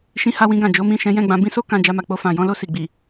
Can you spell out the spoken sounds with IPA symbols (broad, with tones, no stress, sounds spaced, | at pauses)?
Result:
ʃ ĩ˧ h a˧ w ĩ˧ ɡ ã˨ d͡ʒ o˨˦ m ĩ˦˨ ʃ ɛ̃˨˦ j ɛ̃˦˨ ɡ͡b ã˧ b ĩ˦ s o˦ k ã˧ d͡ʒ a˧ m a˨ k͡p o˧ f ã˨ j ɔ̃˨˦ l o˦˨ s i˨ ɡ͡b i˨